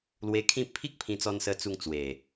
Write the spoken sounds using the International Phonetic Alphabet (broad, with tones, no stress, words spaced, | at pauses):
lwe˧kʰĩ˥˧ pʰi˦k̚ pʰĩ˧t͡sɔ˧nsə˧ t͡su˧ŋ t͡swe˨˩